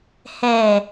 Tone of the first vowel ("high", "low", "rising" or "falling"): low